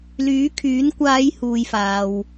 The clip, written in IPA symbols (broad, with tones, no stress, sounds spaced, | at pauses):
l yː˨˥ kʰ yː˨˥ n kʷ aː˨˧ j h uː˨ j f aː˨ w